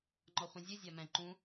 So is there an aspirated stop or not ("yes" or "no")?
no